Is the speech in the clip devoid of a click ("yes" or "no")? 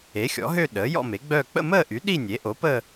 yes